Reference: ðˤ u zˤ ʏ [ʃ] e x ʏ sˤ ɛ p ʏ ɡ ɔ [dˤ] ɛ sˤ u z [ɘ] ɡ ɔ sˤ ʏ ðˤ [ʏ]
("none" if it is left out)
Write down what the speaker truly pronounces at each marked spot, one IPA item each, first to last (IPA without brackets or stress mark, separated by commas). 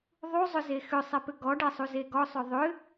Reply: z, ɖ, e, ʏ